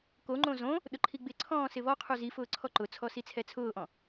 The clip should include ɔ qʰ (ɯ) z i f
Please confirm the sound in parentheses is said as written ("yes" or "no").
no